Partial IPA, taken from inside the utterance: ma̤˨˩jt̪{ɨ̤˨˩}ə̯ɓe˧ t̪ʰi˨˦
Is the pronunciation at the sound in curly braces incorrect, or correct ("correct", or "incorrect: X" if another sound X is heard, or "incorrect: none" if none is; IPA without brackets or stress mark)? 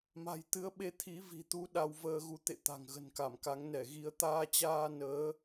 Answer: incorrect: ɨ˨˦